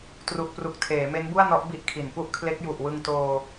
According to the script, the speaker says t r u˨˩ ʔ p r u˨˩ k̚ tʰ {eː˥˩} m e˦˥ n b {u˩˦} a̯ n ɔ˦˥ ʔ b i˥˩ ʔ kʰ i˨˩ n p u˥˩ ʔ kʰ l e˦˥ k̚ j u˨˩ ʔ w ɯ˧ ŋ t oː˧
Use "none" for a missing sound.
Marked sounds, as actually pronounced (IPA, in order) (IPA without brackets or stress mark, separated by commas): eː˩˦, u˥˩